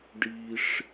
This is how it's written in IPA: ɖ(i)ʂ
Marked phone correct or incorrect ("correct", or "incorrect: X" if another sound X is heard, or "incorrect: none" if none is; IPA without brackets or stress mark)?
correct